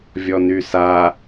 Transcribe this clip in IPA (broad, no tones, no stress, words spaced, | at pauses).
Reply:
vʲɔnysa